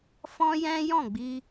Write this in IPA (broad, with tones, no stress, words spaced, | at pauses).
fɔ̃˦jɛ̃˦jɔ̃˦˨ɡ͡bi˧